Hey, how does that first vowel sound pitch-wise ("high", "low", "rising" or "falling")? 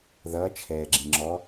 rising